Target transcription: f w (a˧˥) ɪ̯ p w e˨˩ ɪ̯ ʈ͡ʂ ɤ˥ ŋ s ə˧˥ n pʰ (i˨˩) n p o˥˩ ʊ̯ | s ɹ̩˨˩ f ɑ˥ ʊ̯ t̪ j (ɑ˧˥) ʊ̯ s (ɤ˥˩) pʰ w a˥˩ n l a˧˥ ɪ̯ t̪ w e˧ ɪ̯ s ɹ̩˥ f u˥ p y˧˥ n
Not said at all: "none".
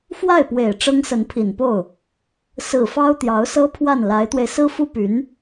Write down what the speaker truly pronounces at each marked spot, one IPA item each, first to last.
a˥˩, i˨˩, ɑ˧˥, ɤ˥

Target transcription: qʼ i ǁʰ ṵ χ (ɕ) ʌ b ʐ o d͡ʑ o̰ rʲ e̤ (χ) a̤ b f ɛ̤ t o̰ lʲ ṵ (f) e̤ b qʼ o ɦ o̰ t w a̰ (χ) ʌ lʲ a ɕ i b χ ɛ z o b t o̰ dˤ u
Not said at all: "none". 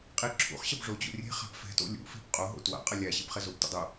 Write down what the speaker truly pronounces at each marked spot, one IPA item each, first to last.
ɕ, χ, f, qʼ

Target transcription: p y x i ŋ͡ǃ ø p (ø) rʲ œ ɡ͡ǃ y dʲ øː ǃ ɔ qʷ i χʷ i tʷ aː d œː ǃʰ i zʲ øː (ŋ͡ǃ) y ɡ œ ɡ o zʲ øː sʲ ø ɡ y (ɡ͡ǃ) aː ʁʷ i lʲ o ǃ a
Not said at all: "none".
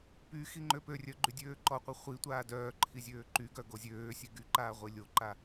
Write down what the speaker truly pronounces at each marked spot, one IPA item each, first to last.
ø, ǃ, ǃ

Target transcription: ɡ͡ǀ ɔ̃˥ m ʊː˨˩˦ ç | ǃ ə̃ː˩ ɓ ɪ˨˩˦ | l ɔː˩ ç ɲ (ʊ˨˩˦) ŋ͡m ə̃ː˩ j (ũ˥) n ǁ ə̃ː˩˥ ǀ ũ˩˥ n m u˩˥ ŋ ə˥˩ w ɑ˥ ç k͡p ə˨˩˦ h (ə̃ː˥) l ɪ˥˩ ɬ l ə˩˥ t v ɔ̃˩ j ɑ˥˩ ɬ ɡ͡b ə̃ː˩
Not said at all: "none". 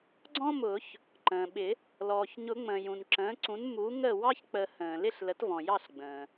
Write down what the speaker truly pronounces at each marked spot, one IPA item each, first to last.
ʊ˨˩˦, ũ˩, ə̃ː˩

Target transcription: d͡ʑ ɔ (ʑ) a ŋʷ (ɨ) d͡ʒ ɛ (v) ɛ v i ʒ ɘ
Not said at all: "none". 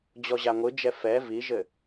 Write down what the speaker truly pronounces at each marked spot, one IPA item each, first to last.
ʑ, ɨ, f

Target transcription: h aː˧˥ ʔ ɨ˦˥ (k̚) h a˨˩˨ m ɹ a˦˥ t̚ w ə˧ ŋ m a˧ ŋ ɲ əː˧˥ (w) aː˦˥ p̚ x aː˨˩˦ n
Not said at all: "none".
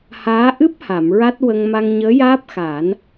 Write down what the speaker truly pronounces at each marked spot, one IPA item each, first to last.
p̚, j

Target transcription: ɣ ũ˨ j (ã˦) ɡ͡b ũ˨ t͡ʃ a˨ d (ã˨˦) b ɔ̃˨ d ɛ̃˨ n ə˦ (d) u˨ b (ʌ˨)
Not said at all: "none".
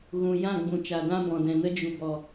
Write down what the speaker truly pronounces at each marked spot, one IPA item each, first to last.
ã˦˨, ã˦, d͡ʒ, ɔ˨

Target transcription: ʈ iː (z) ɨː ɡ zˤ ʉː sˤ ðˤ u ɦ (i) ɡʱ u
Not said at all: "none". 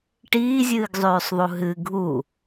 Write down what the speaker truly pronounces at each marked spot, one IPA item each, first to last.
zʲ, ɨ

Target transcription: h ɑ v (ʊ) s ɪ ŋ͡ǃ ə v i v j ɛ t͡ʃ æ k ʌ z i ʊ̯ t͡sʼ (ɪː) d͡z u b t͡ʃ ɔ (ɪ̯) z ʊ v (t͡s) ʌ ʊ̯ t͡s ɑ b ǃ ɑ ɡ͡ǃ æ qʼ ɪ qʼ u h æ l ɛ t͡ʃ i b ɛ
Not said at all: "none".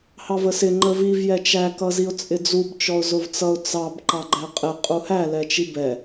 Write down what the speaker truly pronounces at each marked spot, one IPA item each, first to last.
ə, ɪ, ʊ̯, t͡s

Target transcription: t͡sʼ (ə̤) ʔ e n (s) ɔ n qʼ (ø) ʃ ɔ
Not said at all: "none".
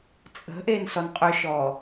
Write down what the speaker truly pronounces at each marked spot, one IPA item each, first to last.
ə̤, s, ø

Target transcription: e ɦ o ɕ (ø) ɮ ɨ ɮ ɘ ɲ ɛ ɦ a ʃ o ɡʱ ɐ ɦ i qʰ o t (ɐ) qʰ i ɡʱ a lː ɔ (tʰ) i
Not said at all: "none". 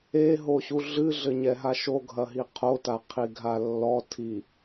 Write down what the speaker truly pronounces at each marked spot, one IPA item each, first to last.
u, a, tʰ

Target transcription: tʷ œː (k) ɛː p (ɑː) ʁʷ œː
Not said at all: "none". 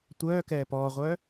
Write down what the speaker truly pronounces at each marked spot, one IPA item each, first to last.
k, ɔː

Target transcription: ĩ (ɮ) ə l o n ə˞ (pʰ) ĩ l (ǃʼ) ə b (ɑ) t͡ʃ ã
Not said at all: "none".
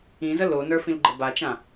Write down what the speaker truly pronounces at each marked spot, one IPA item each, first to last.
z, f, ɡ͡ǃ, a

